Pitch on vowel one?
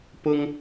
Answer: high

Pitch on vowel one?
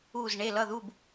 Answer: falling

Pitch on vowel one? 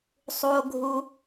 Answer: high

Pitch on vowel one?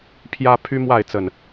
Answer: high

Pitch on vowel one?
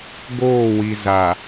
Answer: falling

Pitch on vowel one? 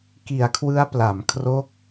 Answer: low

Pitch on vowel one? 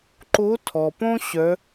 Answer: rising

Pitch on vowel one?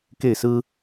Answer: falling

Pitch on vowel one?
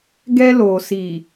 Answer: high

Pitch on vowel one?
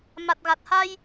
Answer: low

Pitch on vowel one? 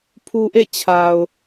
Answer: low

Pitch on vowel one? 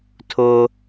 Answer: high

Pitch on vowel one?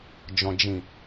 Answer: low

